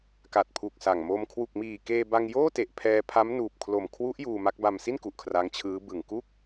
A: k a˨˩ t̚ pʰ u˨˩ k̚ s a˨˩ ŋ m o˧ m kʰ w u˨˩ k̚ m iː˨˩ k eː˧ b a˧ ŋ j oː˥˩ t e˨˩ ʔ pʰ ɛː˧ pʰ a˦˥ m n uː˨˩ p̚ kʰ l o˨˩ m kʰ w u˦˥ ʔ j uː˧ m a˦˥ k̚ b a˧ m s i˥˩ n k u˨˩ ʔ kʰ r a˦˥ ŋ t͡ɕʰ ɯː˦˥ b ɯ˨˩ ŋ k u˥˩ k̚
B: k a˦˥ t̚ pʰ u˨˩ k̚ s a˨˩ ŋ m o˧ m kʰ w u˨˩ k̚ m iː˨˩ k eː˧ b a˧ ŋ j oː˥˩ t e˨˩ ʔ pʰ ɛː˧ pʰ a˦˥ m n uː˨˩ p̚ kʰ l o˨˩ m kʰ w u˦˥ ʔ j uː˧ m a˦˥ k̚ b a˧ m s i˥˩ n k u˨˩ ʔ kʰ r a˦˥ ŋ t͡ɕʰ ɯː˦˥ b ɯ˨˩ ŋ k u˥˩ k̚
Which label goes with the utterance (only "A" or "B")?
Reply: A